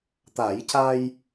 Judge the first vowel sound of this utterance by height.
low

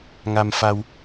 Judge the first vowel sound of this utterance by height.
low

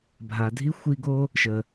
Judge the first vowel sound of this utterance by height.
low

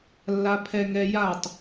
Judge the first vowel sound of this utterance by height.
low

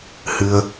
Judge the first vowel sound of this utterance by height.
high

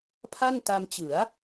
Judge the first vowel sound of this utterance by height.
low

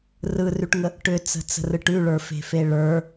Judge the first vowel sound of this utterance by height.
high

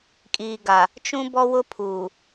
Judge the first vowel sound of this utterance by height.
high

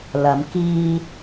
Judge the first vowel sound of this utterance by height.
low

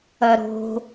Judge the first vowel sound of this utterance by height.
low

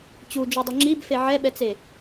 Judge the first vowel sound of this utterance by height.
high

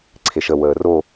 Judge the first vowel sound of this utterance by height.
mid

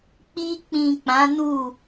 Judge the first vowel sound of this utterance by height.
high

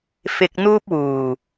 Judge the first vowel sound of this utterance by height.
high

